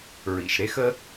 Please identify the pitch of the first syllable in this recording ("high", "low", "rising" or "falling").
low